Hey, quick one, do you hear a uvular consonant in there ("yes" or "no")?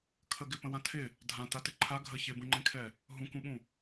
no